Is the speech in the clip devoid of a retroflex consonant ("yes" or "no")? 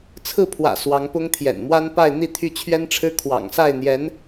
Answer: no